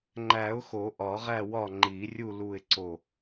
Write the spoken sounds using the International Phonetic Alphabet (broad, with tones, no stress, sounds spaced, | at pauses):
ŋ͡ǃ æ˨˩˦ ʊ̯ x o˨˩˦ ʔ ɒ˨˩˦ ʁ æ˦˨ w ɒ˦˨ ŋ͡ǃ i˨˩˦ rʲ u˦˨ l u˦˨ ɪ̯ ǀ o˦˨